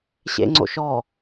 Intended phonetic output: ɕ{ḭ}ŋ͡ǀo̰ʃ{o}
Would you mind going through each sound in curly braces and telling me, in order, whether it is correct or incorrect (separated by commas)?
incorrect, incorrect